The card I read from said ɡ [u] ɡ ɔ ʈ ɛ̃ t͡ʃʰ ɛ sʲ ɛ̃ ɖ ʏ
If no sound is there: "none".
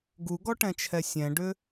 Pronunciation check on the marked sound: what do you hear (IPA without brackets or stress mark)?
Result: u